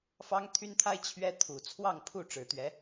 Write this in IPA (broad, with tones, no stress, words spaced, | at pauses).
fɑ˥ŋt̪ʰy˥nt̪ʰa˥ɪ̯ t͡ɕʰɥɛ˥ t̪ʰu˨˩ t͡sʰwɑ˥˧ŋpʰu˥˩ ʈ͡ʂɻ̩˨˩t̪ɥɛ˧˥